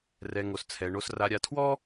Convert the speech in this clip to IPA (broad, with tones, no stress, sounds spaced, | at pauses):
r ɛ˨ ŋ o˨ s t͡sʰ ɛ˨ ɳ o˨ s r a˨ ɾʲ a˨ tʰ w ɔ˦